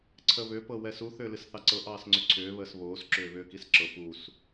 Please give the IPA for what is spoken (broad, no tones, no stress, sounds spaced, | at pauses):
ǀʰ ə β ʏ p ɤ w ɛ s u θ ʏː l ɨ s θ ɑ ǀ ɤ ʔ ɑː s ŋ͡ǀ ʏ ǀʰ ʏː β əː s β oː s ǁ ʏː β ʏː k i s ǁ ɤ p u s